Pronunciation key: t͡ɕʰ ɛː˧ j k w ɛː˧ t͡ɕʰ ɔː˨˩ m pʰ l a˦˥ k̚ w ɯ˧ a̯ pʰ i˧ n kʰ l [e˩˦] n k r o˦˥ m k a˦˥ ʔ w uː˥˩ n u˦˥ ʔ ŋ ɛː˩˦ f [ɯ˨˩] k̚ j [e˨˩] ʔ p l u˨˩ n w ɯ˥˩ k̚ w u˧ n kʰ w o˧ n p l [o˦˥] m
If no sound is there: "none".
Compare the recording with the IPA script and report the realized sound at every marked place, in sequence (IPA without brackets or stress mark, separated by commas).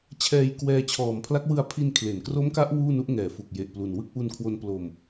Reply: e˩˦, u˨˩, e˨˩, o˧